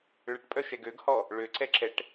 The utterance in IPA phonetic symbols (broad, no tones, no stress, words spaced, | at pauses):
ɭəʈpʼœ ʃɛɡøɡhɔ | ɭøǀɛǁɛʈ